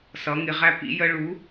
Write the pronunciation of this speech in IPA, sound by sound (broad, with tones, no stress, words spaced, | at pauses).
sʌ˩˧ŋɪ˩˧ʁæ˧ pḭ˧jə˧ ɭu˨˥